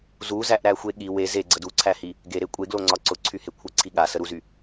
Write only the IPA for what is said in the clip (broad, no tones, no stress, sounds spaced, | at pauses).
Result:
z u z æ ʔ ɾ æ xʷ e ɠ i w e z e ɡ͡ǀ ə d u ǀʰ æ h i | ɡ e ɾ e kʷʼ e ɡ l o ŋ͡ǀ ɒ ǀ ʊ ǀʰ y h e kʷʰ ə ǀʰ i ɠ a s ə ɾ u z y